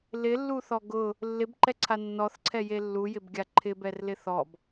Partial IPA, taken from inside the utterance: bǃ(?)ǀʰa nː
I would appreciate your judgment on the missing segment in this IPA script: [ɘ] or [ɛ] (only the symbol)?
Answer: ɛ